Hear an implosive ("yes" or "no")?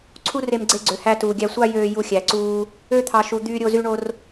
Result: no